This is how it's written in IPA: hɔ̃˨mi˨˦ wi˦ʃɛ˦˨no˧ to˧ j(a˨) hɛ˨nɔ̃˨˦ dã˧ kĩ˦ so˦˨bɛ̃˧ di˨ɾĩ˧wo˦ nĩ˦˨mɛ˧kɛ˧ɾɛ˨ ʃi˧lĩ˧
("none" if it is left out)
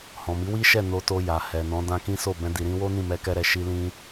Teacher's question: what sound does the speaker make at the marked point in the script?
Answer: a˨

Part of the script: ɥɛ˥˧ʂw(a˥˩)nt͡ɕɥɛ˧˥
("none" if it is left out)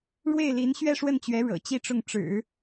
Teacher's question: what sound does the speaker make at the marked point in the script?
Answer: ə˥˩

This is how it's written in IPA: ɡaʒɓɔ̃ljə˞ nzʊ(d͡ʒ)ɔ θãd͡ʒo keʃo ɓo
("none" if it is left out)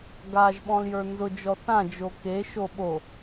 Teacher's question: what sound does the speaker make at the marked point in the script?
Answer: d͡ʒ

